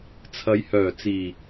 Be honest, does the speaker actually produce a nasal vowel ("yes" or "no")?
no